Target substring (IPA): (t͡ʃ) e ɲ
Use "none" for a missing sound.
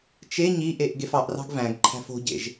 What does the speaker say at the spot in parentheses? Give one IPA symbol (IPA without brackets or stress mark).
t͡ʃ